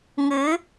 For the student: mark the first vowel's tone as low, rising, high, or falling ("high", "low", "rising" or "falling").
rising